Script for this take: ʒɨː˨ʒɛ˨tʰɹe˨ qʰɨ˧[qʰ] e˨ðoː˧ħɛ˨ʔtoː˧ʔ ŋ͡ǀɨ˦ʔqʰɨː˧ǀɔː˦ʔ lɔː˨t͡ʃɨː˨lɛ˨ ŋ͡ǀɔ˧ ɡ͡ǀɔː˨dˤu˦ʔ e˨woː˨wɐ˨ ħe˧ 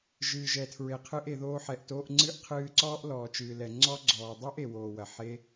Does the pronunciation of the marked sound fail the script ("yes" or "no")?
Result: yes